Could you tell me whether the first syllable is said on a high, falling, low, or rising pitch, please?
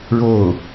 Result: falling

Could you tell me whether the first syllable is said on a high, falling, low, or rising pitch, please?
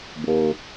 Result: low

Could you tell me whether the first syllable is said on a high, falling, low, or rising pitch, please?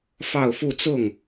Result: falling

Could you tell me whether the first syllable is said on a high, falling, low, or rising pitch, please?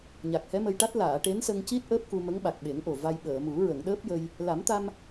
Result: low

